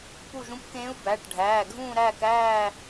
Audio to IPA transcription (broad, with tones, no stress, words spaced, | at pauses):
pu˦˨ʒũ˧˥pkẽː˧˥u̯ bæ˩˧˩ʈ ɖʱæː˩˧˩ɡʱũː˦˨ɾæː˦˨kæː˦˨